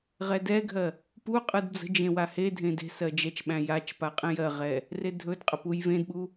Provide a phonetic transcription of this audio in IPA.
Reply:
ʁ ɛ d ɛ ɡʱ ɜ | p u qʼ ɯ d d͡z ə̤ d͡ʒ ẽ w a h e dʱ ẽ d e̤ s ɜ d͡ʒ ɛ t͡ʃ ɓ æ̃ j a t͡ʃ p a qʼ ẽ j ɜ ʁ ɛ | r e dʱ ɵ d qʼ ə p u j v ẽ d ɓ u

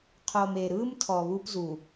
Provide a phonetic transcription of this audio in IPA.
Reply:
qʰ o˨ m e˨ ɾ ɯ˦ m tʰ ɔ˨ β u˦ p z u˨

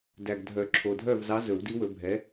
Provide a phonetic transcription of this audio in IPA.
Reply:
d æ˨ ɡ dʱ œ˨˩˦ ǁʰ o˨ dʱ œ˥˩ v z ɑ˨˥ z ɵ˨˩˦ w d i˨˥ w ɵ˨˩˦ bʱ ɛ˨˥

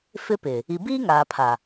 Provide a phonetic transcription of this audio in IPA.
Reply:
f ɪ˦ p ɪ˨ | i˨ b iː˦ ŋ aː˨ pʰ a˨

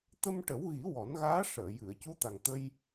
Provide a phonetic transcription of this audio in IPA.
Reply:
t̪ ə˧ m ʈ ə˨˩˦ w ɣ i˨˩˦ w ɔ˨˩˦ n ɣ aː˧˥ ʂ əː˨˩˨ j ɨ˨˩˨ ə̯ c u˧˥ t̪ a˨˩ ŋ t̪ ə˧ j

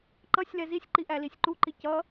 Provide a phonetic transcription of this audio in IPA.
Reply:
ǃ ʌ sʲ l ɛ z i sʲ ǃ i ʔ æ l i sʲ ǃ u ǃ i c ʌ

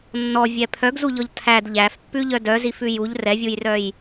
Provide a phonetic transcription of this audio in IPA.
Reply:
nː ɔ vʲ ɛ pʰ œ ɡ z u ʎ ɔ ʎ tʰ æ d ʎ æ f pː ʉ ʎ œ d œ z i f ʉ j u ʎ r ɛ vʲ u j r œ j

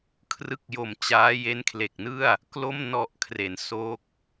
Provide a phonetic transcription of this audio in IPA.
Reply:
kʰ r ɯ˦˥ k̚ j o˨˩ m t͡ɕ aː˦˥ j e˦˥ n kʰ l e˨˩ k̚ n ɯ˥˩ a̯ | k l o˥˩ m n ɔ˨˩ ʔ kʰ r e˩˦ n s o˦˥ k̚

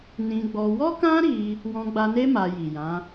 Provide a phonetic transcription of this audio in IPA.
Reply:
n ĩ˧ ɡ͡b ɔ˧ w ɔ˦ k ã˦ ɾ i˧ | w ɔ̃˧ ɡ͡b a˧ n e˦ m a˧ j i˨ j ã˨˦

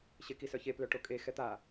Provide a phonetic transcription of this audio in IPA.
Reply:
ɕ e k i s œ ç e p l œ ʈ o kʼ e x ɛ t̪ a

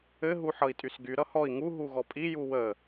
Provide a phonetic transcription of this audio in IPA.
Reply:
ɘ ɦ u ħ ʌ i̯ tʼ y s ɡ y ɾ ʌ h ɔ i̯ ŋ u ɦ u ɣ ɔ pʼ i j u w ə

